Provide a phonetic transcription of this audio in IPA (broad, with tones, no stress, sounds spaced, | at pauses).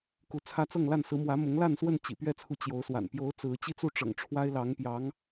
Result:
k u˧˥ t͡sʰ ä˥ t͡s ɤ˥˧ ŋ l a˥˩ n s ɹ̩˧˥ m w ä˧˥ m ʊ˧˥ ŋ l a˥˧ n s w ə˥˩ n t͡ɕ ḭ˨˩ p ɥ ɛ˥˩ t͡sʰ u˧˥ t͡ɕ j o˧˥ ʊ̯ s w a̰˨˩ n p j o˧˥ ʊ̯ t͡s ɹ̩˧˥ t͡ɕ i˥˧ t͡s u˥˩ ʈ͡ʂ ɤ̰˨˩ ŋ ʈ͡ʂʰ w a˥ ɪ̯ l ɑ˧˥ ŋ p j ɑ˧˥ ŋ